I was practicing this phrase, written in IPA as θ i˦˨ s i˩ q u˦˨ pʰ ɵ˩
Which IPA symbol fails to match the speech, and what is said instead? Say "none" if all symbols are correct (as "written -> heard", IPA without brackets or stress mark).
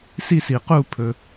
θ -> s